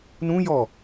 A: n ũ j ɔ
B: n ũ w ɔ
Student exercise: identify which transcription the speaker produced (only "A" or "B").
A